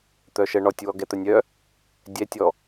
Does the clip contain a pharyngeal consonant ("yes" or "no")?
no